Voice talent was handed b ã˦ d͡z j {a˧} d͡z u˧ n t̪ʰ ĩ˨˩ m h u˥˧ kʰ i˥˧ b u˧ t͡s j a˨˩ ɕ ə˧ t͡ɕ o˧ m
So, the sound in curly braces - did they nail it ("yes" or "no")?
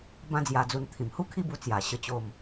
yes